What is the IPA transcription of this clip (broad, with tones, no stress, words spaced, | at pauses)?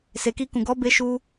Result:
se˨ki˧kũ˨ ɡɔ˨˦be˧ʃu˧